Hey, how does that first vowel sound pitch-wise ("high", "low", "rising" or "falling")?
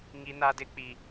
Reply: high